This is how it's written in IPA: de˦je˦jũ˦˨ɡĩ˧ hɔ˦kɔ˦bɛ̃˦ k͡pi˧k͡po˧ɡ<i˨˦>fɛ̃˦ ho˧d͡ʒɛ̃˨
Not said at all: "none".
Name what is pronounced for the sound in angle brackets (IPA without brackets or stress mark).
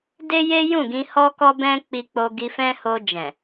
i˧